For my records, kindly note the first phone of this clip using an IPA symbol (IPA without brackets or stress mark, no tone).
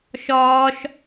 ʃ